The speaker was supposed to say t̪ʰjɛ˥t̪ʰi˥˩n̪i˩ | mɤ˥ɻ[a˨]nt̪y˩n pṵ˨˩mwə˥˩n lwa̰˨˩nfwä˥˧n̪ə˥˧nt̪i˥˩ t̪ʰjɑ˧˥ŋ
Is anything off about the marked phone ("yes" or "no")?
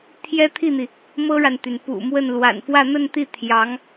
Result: no